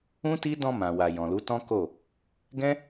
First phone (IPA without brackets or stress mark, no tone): ũ